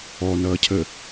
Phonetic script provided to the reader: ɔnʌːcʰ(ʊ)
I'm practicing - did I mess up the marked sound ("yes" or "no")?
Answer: yes